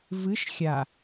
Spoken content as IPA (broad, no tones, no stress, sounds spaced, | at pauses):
v ɨ ʃ xʲ a